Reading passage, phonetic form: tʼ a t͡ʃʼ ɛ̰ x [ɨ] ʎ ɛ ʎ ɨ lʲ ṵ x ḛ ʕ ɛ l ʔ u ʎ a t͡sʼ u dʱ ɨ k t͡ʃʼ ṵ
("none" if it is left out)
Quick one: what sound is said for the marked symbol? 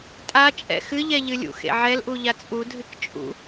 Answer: ɨ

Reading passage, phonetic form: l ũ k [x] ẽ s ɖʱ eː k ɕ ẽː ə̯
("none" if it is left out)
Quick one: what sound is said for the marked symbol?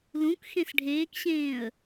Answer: x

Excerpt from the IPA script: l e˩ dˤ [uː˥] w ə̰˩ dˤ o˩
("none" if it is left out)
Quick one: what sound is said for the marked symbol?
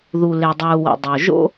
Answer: uː˩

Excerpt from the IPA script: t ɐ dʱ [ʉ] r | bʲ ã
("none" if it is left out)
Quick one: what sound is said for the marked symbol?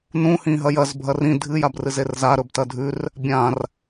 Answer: ʉ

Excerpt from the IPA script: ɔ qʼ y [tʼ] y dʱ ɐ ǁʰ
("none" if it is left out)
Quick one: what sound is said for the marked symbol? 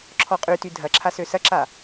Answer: t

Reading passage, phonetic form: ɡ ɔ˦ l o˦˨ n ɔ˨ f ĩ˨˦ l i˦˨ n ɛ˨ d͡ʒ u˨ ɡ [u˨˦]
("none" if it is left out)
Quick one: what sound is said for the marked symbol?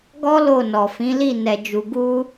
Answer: u˧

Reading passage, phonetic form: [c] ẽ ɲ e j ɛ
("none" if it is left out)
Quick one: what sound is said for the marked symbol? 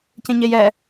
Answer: c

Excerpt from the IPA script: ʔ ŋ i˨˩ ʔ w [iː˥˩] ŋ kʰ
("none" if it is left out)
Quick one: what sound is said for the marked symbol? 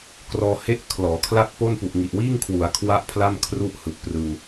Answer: iː˥˩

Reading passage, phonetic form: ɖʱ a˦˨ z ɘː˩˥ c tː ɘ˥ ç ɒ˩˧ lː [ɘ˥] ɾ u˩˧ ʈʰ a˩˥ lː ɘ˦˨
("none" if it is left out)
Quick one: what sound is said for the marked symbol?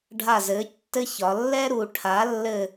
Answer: ɛ˥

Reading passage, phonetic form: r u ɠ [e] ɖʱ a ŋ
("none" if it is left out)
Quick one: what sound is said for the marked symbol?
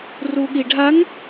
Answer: i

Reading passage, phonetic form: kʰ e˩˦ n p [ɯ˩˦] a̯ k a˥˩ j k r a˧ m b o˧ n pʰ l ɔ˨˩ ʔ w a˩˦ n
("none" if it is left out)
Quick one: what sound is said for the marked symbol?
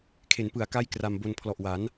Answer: ɯ˩˦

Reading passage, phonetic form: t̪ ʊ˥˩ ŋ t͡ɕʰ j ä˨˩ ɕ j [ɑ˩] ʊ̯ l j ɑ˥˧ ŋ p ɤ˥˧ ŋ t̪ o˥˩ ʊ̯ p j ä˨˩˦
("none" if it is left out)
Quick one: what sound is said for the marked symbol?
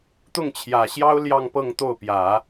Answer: ɑ˥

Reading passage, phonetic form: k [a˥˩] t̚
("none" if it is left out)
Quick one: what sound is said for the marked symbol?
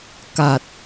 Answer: a˨˩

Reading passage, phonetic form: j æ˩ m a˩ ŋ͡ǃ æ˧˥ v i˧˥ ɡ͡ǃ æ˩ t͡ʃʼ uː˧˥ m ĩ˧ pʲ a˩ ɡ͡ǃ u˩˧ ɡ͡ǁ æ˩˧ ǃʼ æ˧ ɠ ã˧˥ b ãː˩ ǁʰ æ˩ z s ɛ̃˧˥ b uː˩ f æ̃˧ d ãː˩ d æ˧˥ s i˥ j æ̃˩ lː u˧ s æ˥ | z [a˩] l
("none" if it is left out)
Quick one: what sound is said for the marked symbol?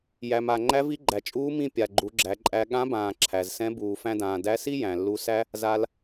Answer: a˩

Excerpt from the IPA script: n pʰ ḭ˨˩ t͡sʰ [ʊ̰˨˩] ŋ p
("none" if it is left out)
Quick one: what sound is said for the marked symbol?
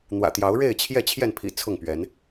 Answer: ʊ˥˨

